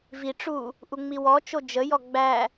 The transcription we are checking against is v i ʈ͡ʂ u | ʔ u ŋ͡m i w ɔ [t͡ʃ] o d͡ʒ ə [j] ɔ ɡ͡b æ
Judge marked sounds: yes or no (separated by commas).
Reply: yes, yes